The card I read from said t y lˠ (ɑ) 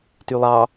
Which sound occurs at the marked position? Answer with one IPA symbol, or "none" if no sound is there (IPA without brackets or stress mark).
ɑ